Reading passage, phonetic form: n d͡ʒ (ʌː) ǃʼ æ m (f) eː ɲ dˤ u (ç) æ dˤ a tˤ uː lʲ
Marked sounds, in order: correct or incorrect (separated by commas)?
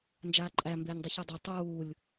incorrect, incorrect, correct